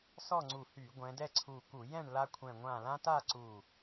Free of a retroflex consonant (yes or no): no